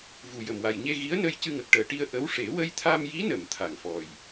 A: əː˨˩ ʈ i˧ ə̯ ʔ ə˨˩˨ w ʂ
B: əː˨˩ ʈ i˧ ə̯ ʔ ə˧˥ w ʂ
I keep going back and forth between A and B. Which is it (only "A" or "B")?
B